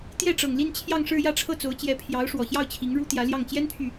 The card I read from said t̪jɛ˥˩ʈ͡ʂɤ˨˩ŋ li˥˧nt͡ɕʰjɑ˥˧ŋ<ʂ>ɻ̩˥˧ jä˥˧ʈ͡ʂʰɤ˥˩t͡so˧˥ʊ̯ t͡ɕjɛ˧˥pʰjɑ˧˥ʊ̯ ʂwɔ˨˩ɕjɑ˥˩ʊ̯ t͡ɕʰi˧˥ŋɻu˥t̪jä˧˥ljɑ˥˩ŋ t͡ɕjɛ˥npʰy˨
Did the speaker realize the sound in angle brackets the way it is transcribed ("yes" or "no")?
yes